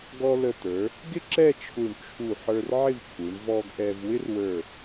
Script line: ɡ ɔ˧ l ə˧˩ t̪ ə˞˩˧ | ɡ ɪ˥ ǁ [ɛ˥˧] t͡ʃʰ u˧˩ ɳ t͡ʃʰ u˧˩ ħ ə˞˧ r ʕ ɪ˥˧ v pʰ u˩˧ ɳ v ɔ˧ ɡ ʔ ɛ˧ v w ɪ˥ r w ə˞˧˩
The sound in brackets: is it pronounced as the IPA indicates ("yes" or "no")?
yes